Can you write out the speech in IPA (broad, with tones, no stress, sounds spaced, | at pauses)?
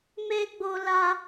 m e˦ ɡ͡b o˦ l a˦